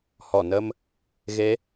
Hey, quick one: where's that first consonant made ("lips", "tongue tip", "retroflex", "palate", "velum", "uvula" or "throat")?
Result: throat